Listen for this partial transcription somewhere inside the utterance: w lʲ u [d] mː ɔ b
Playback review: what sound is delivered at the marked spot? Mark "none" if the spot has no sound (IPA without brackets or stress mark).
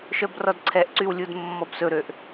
d